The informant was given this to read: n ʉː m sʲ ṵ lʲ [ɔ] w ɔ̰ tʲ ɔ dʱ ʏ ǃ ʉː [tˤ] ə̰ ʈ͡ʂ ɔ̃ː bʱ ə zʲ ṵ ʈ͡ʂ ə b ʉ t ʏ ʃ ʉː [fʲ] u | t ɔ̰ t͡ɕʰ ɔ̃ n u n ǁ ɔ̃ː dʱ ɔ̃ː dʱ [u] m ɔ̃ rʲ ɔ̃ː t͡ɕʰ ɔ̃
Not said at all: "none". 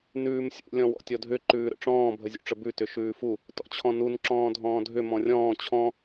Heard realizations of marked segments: ɔ̃, ɾ, f, ʏ

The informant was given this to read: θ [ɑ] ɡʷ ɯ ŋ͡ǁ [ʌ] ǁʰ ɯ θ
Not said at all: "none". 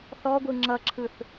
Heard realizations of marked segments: ɔ, ʌ

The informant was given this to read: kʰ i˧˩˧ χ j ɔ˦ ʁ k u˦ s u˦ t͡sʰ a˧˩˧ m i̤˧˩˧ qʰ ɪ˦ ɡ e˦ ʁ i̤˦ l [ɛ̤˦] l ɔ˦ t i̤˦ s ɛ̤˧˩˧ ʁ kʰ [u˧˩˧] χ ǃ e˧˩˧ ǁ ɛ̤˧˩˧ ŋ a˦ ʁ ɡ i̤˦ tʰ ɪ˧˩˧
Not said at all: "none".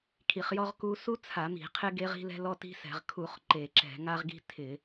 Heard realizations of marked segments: ɛ̤˦, u˧˩˧

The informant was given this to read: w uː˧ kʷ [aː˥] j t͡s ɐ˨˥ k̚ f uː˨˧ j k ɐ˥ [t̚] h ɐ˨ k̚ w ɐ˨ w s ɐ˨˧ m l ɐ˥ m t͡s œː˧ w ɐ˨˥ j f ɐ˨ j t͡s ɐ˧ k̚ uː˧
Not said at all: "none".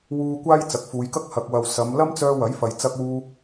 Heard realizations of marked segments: aː˥, k̚

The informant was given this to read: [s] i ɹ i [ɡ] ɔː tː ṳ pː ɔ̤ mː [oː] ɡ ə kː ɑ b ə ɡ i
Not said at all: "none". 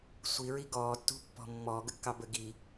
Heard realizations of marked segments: sʷ, ɡ, ɔː

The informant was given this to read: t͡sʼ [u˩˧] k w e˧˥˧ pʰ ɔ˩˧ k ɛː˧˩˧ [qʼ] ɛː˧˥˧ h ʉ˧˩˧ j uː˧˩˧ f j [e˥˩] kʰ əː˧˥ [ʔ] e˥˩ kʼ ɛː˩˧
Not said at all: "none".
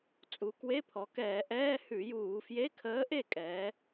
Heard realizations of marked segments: u˩˧, ʔ, e˧˥˧, ʔ

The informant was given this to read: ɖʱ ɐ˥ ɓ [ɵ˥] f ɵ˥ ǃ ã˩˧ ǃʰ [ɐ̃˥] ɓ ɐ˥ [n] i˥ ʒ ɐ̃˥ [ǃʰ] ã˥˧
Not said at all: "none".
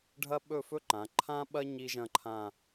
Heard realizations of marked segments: ɵ˥˧, ã˥, ɲ, ǃʰ

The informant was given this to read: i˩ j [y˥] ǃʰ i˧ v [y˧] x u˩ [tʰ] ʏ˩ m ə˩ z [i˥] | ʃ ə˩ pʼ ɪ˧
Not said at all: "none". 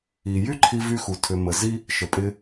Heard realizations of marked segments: y˥, y˧, tʰ, i˥

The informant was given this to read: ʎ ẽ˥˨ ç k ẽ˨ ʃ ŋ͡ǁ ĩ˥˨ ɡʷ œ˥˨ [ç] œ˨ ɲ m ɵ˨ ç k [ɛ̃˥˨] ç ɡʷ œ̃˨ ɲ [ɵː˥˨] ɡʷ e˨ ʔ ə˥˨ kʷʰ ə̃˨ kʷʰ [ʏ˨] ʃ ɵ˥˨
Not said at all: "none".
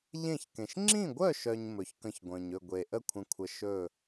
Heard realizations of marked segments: ʃ, ə̃˥˨, ɵ˥˨, ə˨

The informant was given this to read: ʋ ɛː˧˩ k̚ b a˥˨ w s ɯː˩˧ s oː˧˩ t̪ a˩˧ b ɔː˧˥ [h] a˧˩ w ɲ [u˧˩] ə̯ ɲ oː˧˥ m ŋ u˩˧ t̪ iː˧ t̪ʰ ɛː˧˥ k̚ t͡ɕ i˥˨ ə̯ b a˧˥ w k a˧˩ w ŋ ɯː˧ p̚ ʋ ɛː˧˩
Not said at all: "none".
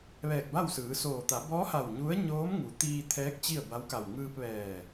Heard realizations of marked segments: h, u˧˥

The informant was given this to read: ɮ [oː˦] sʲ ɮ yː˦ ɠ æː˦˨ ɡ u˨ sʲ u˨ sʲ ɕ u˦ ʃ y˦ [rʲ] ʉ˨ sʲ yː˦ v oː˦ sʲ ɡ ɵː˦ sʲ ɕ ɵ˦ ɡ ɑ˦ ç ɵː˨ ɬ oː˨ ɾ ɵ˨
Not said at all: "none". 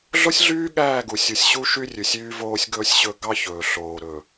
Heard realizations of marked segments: o˦, rʲ

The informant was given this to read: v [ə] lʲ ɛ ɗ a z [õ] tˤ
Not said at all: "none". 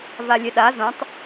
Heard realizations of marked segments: a, õ

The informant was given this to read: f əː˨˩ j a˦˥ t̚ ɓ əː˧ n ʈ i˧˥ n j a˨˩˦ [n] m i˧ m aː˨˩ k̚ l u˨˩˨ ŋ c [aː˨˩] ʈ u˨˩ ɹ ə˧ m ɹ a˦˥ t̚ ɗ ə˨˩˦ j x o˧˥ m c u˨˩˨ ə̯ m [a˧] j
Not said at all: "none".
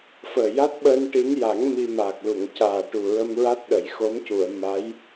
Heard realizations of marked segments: ŋ, aː˨˩, a˧˥

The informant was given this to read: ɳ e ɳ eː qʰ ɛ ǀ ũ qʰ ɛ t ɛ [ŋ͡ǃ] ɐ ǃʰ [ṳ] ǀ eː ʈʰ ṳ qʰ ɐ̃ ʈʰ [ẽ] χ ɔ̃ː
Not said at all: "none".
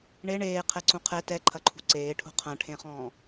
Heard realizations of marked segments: ǃʰ, ṳ, ẽ

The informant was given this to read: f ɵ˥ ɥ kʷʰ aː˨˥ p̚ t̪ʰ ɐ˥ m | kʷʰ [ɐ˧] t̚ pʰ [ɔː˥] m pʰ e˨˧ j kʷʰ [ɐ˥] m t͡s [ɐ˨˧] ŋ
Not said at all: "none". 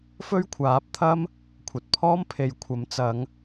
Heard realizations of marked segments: ɐ˨, ɔː˥, ɐ˨˥, ɐ˨˧

